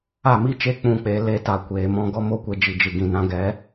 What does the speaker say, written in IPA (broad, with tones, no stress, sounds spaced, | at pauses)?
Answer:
a˦˨ m i˦ t͡ʃ e˦ k͡p ũ˦˨ k͡p e˧ l e˦ t a˧ kʷ eː˨ m ɔ̃˧ ɡ ɔ˦ m o˦ kʷ e˧ d͡ʒ i˨ d͡ʒ ɨ˨ ɡ ĩ˨ n ã˧ ɡ ɛ˨˦